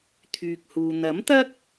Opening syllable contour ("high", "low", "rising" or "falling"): low